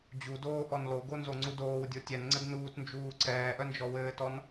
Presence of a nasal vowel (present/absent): absent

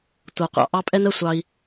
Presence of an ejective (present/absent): present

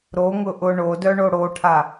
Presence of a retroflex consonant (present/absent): present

